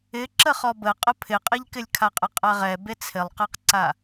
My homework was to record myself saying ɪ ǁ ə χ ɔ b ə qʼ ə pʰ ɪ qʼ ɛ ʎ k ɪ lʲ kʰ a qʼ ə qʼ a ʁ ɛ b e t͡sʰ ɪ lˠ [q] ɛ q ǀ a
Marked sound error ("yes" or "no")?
no